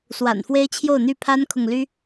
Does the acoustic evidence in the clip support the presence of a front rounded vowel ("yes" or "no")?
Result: yes